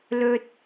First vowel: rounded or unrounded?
rounded